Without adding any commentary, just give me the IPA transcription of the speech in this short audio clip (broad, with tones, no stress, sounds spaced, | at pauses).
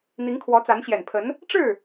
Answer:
n̪ i˧˥ ŋ kʰ w ɔ˧˥ t͡s a˧˥ n ɕ j ɛ˨˩ n pʰ ə˧˥ n | ʈ͡ʂ ɻ̩˥˩